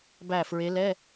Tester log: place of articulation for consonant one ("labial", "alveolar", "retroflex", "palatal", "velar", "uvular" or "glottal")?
labial